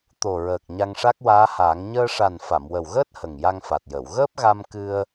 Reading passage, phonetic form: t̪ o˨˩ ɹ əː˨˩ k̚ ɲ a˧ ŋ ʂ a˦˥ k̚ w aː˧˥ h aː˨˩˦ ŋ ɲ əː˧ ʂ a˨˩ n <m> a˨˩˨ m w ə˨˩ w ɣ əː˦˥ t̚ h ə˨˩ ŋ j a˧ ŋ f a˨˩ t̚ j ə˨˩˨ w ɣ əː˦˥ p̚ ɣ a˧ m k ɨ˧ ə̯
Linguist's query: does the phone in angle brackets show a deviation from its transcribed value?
yes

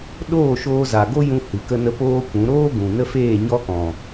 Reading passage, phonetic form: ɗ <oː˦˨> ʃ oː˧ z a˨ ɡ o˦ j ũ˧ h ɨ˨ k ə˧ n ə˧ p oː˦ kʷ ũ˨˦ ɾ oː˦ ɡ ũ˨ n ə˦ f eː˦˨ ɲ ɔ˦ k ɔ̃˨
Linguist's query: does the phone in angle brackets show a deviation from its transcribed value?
no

